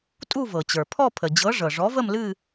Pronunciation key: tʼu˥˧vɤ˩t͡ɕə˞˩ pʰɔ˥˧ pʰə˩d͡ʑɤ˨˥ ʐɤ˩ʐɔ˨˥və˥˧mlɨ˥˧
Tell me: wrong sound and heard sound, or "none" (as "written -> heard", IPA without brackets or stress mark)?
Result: none